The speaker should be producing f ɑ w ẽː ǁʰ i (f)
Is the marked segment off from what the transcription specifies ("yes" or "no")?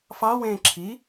yes